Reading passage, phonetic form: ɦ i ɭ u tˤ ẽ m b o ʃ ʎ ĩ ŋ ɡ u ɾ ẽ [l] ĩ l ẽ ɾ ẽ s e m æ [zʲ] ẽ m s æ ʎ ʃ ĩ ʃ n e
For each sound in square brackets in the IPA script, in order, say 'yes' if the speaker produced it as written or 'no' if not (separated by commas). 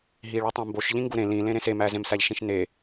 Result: yes, no